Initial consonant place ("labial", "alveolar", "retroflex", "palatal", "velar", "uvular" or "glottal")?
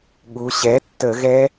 velar